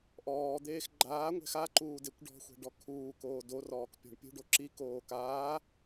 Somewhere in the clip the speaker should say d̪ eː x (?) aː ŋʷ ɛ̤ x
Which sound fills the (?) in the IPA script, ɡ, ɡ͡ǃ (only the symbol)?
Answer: ɡ͡ǃ